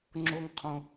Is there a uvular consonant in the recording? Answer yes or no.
yes